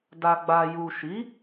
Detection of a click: absent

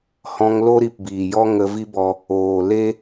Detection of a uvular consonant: absent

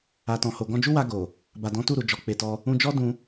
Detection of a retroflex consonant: absent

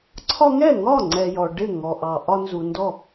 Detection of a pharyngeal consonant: absent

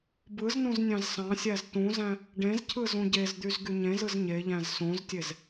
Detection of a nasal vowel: present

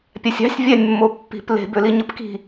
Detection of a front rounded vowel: present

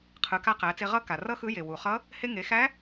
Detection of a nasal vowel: absent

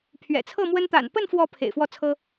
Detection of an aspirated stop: present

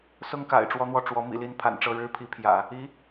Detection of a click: absent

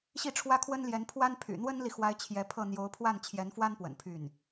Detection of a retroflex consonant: present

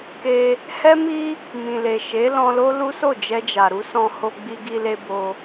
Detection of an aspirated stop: absent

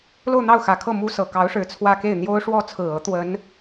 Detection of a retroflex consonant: present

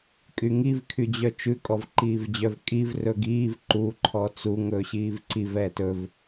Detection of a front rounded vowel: present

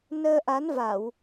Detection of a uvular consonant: absent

